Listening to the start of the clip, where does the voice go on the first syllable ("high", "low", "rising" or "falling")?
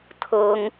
high